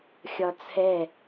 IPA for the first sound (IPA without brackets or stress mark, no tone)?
xʲ